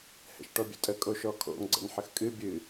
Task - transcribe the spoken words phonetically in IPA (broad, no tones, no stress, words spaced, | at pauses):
hɛ̰ʃʈɔbʲə̰tʼə kʼoʃɔkʰo̰ŋ ɡ͡ǀə̰nħəxkʼɨ bʲɨ